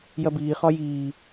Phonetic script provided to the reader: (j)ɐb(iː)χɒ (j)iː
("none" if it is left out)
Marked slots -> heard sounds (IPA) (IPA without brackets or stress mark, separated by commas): j, iː, j